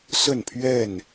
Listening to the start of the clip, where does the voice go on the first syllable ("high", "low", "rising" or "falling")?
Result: falling